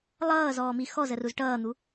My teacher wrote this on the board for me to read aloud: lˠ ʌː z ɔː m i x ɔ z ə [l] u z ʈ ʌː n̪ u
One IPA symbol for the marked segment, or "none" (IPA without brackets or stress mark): r